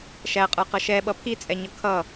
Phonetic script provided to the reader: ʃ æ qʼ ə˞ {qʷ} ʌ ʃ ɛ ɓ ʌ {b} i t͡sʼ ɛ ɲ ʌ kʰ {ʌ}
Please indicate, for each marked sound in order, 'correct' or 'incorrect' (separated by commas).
incorrect, incorrect, correct